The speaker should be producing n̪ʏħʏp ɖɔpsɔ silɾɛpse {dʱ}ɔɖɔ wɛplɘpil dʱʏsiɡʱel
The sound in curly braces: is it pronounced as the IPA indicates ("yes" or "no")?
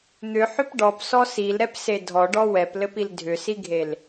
yes